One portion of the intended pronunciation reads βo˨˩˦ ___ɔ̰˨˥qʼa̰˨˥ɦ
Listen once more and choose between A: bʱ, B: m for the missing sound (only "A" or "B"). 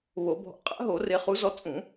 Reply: A